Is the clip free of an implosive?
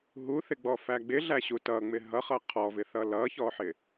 yes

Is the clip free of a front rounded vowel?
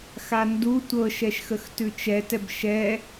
yes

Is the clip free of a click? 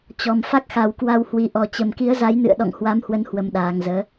yes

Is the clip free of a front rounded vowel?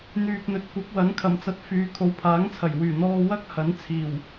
no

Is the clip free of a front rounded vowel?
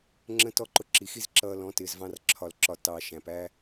yes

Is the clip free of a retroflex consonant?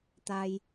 yes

